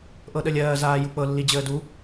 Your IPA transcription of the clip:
ʔɤɗəlʲɜː zaːjuk͡pɤ lːid͡ʑəːdu

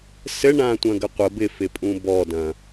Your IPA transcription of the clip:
sɘɳãtʷɐ̃ɡə qʷə bɪfɪpʼũ bɔdɐ̃

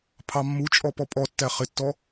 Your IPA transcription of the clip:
pʰɑmːut͡ʃʼɔ pɔpʼɔtːæ χɪtːɔ

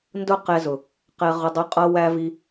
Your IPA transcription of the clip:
ndʊ˦qɛ˧zʊ˨ | qɛ˧ʁʊ˧dˤu˧qʼʌ˦ wæ˧ vi˧

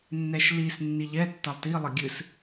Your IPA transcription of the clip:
nːɛʃlis nːiʎɛ tːɐlˠti lˠɘɡʲɨs

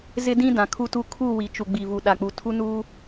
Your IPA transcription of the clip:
zɪ˦dĩ˦ dã˨ kʰu˦tu˦ kʰu˦˨ wi˨t͡ʃu˨ ɡ͡bi˨vu˨ ɗa˨k͡pu˨ tʰu˦nuː˦

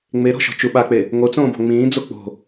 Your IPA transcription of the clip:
ŋ͡meɾɔ̤ʃɔ̤ t͡ʃuɓak͡pe | ŋot͡sõːbɔ̤ ŋ͡mĩːd͡zo k͡po̤

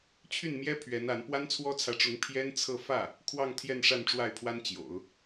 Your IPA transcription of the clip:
t͡ɕʰy˥˩nmjɛ˥ pʰɥɛ˧˥na˧˥n pwa˥nt͡sʰwɔ˥t͡sʰä˧˥ʈ͡ʂʊ˧˥ŋ pʰjɛ˥nt͡sʰɤ˥˧ fä˥˩ | kʰwɑ˥˧ŋt̪ʰjɛ˥˧n ʂa˥˧nʈ͡ʂwa˥˩ɪ̯pʰwa˥n t͡ɕjo̰˨˩˦ʊ̯

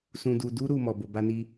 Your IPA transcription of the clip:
sũ˧du˧du˦ ɾu˦mɔ˧ bo˧ba˦ni˦

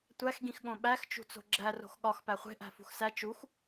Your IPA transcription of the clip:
tʷæxɡĩxɠõ ɓæxt͡ʃṳt͡so̤ ɡ͡ǁæ ro̤xɠɒx pæχʷe̤ʔæ̤ fṳxsæ t͡ʃux

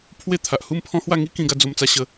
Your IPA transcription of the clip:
pʰwe˦t̪ʰa˨ʔ hu˥˧mpʰɔ̃˦hwa˥˧ ŋi˦kĩ˧ɡa˧ d͡zo˧mt͡sa˧ɕə˧

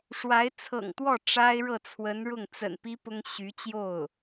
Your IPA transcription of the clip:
ʂwa˧˥ɪ̯ t͡sʰɤ̰˨˩ŋt̪wɔ˥˩ ʈ͡ʂa˥ɪ̯ ɻɤ˥˩t͡sʰwə˧˥nɻʊ˥˩ŋ t͡sə̰˨˩npi˥ pʊ˥ŋ ɕy˧˥t͡ɕjo˥˩ʊ̯

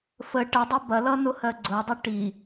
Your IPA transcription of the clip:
fə ʈədˤɐ bɐlʌ nʊhɜɡ͡ǀʊdˤə ʈi

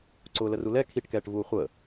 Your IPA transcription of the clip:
ǀʊːlərulɛ kʰiʈkɛːʈvuː χʷəː

